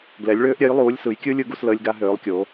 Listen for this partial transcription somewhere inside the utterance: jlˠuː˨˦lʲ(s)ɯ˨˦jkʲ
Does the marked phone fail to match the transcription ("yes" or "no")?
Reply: no